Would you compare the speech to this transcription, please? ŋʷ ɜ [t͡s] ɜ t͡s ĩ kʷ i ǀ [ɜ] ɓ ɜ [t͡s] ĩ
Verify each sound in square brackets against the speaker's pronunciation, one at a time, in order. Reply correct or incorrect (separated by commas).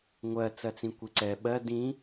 correct, incorrect, incorrect